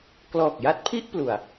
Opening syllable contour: low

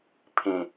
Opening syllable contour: low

